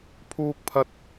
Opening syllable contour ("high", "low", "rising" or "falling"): high